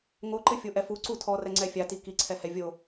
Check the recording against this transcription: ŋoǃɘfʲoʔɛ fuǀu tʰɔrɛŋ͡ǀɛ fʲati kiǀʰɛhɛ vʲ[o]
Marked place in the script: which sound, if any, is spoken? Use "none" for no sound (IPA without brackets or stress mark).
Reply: o